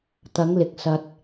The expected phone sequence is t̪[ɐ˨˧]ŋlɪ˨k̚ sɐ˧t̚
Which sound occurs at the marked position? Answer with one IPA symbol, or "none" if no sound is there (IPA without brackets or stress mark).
ɐ˨˧